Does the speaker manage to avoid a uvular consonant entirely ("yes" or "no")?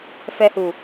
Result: yes